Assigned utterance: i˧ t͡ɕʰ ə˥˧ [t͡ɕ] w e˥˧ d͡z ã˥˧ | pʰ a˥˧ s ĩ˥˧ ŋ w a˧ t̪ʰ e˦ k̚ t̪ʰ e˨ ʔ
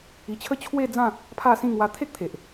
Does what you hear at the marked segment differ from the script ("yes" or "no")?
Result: yes